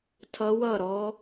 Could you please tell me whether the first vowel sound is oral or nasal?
oral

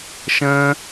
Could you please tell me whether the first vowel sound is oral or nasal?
nasal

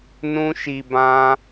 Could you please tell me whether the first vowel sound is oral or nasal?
nasal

